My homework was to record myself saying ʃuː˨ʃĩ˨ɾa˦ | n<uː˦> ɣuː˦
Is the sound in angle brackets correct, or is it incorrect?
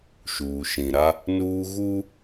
correct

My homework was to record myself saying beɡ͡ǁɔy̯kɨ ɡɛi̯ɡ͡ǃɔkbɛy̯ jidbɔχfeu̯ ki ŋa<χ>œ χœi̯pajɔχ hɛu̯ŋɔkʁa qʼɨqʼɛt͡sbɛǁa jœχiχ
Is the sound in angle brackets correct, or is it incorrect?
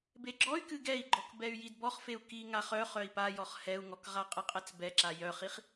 correct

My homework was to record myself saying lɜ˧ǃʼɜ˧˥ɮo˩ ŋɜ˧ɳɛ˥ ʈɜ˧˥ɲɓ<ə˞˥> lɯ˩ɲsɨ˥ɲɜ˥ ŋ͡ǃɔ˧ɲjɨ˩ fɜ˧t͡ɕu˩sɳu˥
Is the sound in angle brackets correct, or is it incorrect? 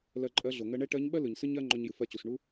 incorrect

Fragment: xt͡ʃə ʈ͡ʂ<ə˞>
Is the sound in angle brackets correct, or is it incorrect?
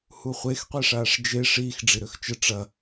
incorrect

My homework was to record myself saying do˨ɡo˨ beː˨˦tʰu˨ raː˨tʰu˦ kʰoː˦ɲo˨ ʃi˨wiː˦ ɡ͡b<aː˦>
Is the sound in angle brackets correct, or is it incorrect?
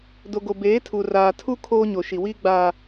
correct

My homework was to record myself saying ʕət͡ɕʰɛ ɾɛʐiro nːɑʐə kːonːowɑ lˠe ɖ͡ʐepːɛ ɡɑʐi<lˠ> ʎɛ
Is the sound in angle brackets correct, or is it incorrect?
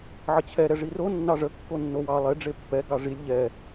incorrect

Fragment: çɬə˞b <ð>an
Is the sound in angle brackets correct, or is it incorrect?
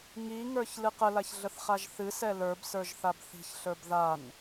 correct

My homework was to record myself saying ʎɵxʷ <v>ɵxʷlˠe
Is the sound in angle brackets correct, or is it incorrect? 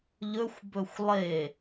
incorrect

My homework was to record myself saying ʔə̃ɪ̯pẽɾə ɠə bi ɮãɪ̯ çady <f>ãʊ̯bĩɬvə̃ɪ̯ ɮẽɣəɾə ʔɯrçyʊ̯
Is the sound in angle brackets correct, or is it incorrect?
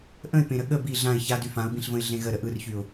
correct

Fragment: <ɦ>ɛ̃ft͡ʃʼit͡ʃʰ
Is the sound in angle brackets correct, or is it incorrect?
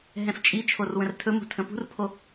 correct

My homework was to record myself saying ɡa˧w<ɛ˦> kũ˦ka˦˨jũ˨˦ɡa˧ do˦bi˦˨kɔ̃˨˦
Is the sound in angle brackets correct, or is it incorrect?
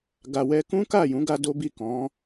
correct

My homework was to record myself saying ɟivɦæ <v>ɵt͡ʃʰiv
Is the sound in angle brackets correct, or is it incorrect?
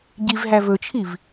correct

